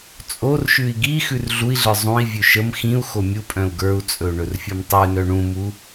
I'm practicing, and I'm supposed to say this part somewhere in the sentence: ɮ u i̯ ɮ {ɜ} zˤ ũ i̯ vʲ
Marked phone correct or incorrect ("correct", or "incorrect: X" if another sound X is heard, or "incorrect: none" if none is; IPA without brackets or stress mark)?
incorrect: ə˞